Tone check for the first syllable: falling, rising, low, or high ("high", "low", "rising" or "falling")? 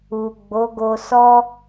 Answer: low